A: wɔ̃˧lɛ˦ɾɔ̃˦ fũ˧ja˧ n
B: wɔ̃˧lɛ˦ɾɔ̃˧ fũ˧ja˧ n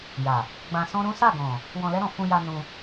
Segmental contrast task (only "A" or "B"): B